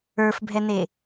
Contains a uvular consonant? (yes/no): no